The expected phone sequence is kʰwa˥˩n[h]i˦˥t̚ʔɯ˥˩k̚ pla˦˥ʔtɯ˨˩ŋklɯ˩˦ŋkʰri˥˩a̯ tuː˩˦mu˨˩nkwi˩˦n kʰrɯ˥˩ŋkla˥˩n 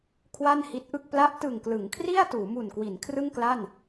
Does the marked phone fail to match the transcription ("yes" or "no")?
no